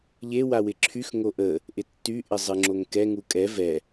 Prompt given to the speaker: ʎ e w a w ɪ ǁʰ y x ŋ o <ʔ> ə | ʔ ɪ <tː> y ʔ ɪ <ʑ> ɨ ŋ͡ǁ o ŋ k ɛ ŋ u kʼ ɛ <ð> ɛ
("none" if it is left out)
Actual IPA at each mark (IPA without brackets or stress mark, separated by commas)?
ʔ, tː, zˤ, v